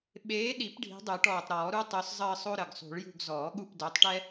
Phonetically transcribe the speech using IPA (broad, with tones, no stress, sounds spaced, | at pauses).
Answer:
ɓ eː˨˦ ɗ i˨˩˦ p ɖʱ i̤˨˦ dˤ ø˨˩˦ ʈ ɔː˨˩ tˤ ɾ ɔː˨˩˦ ɾ u˥ tˤ œ˨˦ s zˤ əː˦˨ sˤ o˥ ɾ ə˨˩ ɡ sˤ ṳ˨˩˦ ɭ j ṳ˦˨ ɡ z ɔː˨˩˦ ɠ u˦˨ p d œ˨˦ tˤ ʈ ɛ˥